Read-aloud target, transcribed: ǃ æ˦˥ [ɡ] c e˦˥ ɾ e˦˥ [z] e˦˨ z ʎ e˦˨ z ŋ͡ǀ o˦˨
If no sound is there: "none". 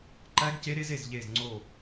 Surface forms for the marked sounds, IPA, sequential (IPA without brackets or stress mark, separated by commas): ɡ, z